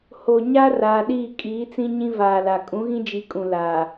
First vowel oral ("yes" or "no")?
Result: yes